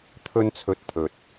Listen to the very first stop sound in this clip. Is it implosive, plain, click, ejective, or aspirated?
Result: aspirated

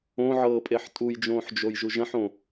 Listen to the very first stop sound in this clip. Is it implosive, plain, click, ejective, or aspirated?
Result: ejective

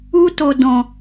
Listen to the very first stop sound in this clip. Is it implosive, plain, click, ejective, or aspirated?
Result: plain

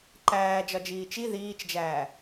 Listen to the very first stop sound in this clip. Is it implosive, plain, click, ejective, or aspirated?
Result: click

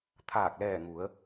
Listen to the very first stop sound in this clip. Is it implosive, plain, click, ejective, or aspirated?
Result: aspirated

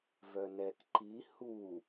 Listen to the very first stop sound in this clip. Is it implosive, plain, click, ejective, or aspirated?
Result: plain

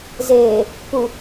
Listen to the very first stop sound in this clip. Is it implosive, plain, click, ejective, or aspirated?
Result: plain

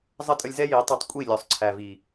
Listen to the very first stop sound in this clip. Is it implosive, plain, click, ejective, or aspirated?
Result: ejective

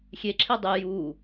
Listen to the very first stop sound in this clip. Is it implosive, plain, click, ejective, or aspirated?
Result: click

